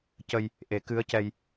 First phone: c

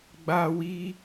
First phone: ɡ͡b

